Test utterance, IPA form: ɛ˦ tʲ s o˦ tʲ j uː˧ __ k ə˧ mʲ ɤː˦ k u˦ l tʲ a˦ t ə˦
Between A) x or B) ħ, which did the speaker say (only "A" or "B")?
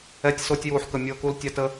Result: B